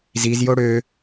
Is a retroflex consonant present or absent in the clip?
present